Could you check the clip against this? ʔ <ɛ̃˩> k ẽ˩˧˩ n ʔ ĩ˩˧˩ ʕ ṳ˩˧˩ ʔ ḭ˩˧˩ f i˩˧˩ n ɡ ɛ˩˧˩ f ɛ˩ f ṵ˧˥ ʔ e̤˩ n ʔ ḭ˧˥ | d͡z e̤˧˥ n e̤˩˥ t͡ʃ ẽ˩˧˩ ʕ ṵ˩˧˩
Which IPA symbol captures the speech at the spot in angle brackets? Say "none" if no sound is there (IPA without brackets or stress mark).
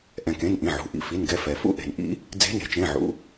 ɛ̃˩